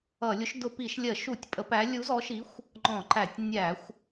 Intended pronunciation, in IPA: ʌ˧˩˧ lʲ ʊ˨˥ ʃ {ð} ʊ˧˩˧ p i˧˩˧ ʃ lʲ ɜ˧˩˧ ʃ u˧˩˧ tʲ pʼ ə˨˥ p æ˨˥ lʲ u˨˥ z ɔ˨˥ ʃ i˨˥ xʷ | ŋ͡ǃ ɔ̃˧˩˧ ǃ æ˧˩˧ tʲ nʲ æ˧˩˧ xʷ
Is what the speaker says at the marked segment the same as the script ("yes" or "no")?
no